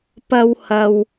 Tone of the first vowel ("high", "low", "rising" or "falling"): high